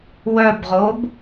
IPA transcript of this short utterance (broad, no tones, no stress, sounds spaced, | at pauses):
w œ b ʁ o b